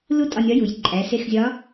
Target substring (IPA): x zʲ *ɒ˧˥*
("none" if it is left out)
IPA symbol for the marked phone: ɒ˧˥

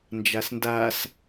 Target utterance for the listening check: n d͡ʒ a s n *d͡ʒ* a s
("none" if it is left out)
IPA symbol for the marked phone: d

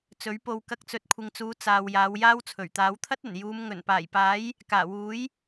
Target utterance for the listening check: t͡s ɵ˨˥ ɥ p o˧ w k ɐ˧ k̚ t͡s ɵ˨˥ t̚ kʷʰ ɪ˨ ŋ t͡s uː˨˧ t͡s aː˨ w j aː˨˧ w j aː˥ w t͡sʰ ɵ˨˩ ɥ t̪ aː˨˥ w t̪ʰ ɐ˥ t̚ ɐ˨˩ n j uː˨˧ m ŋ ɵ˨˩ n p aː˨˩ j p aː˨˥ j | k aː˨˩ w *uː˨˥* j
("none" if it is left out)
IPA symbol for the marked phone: uː˨˥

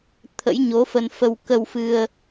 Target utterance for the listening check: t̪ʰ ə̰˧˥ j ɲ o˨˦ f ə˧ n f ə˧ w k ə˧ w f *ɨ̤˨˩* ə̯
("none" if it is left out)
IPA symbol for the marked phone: ɨ˧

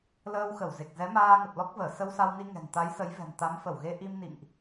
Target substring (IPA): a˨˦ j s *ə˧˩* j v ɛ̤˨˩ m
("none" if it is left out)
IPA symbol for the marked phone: ə˨˦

